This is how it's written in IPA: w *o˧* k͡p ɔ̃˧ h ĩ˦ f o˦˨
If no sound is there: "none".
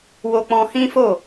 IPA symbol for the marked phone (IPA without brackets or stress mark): o˧